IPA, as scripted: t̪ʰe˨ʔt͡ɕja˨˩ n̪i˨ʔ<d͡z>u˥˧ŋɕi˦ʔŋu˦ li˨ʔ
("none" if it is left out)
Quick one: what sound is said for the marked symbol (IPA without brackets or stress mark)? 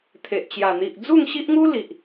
d͡z